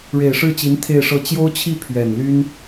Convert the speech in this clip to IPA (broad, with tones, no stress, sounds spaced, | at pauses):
ɻ e˨˩ ɪ̯ ʂ ɻ̩˥˩ t͡ɕ i˧˥ n t̪ʰ e˥˧ ɪ̯ ʂ ɤ˥˩ t͡ɕ j o˥ ʊ̯ t͡ɕʰ i˥˩ pʰ ɥ ɛ˨˩ n l y˥ n